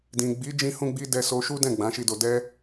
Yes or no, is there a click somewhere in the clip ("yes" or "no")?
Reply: no